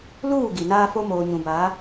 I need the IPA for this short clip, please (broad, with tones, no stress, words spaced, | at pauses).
luː˦˨ ɡi˨naː˦fo˦ moː˨ɲũ˨baː˨˦